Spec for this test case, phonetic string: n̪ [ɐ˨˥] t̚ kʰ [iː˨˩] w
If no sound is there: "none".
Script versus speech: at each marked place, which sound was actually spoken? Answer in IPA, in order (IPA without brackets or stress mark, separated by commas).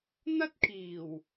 ɐ˥, iː˨˩